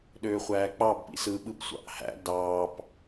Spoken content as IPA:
ɗ øː χʷ æː k͡p ɑ b p ḭ s ɯ ɓ ɯ b sʷ ɑ̰ ʔ h æ̰ d ɑː p

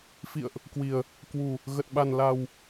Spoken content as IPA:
f ḭ˧˨ ə̯ ʔ | k w i˨˩ ə̯ | k w u˨˩ | ɣ ə˨˩ t̚ ɓ a˨˩ n l a˨˩ w

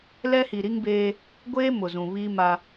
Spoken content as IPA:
l ɛ˦ h i˨ ɾ i˦ ŋ b eː˦ | ɡʷ eː˦ m ʊ˨ z ũ˨ β i˦ m a˦

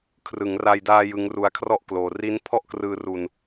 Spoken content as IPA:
kʰ r ɯ˩˦ ŋ r a˧ j d aː˧ j ɯ˦˥ ŋ r u˦˥ a̯ kʰ r ɔ˥˩ ʔ k l oː˧ r i˦˥ n pʰ ɔ˥˩ ʔ k r ɯː˧ r u˧ n

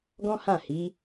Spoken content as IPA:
ɡ ɔ̃˦ h ã˦˨ h i˨˦

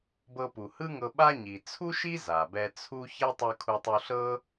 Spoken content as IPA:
b ɤ˧ p u˩ h ɯ˥ ŋ ɤ˧ ɓ a˥ ɲ i˩ t͡sʰ u˥ ʃ i˥ z a˩ b ɛ˧ t͡sʰ u˥ ç ɛ˥ tˤ ɯ˧ kʰ u˧ tˤ u˧ ɬ ɤ˥

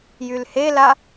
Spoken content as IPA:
j y l h e l a

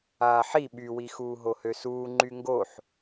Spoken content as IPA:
aː ħ i ɓ y w i x uː ɦ o h ø s uː ŋ͡ǃ y ŋ ɡ o ħ

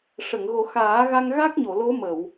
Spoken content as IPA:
ʂ ə˨˩˨ ŋ ɣ o˨˩˦ x aː˨˩˦ ɣ a˧ ŋ ɣ a˦˥ k̚ ɲ o˨˩˨ l o˧˥ m ə˨˩˨ w

